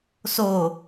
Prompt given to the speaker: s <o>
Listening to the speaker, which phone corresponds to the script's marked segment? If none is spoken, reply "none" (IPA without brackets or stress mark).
o